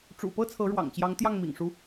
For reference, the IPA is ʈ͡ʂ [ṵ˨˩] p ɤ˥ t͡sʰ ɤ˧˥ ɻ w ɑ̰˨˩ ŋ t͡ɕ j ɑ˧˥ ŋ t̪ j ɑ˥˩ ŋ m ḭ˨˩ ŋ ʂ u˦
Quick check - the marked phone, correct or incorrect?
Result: correct